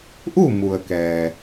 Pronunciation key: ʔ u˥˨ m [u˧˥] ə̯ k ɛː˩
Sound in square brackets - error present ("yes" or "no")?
yes